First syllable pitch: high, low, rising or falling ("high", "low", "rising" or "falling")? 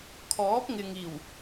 rising